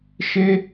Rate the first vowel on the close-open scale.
mid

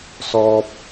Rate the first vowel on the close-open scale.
mid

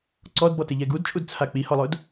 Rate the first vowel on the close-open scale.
mid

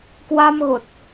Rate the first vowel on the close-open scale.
open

